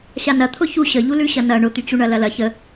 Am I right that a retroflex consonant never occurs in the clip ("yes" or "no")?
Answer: no